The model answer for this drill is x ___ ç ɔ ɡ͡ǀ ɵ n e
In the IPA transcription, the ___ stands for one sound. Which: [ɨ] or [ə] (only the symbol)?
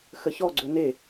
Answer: ə